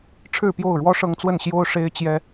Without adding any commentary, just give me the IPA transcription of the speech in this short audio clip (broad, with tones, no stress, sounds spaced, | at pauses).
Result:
ʈ͡ʂʰ ɻ̩˥˨ p j o˥˨ ʊ̯ ɻ w ɔ˦ ʂ ɤ˦ ŋ t͡s w ə˥˨ n ɕ j o˦ ʊ̯ ʂ e˦ ɪ̯ t͡ɕ j ɛ˦